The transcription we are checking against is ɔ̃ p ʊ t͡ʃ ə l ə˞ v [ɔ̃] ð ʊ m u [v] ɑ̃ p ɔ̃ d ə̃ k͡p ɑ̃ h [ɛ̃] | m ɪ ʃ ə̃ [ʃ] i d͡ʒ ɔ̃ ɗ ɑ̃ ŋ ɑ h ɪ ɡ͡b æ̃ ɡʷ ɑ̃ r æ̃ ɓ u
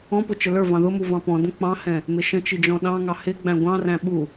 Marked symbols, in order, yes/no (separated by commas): no, yes, yes, no